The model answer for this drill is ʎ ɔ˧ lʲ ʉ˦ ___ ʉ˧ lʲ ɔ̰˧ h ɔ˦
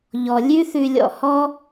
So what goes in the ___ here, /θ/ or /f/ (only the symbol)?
θ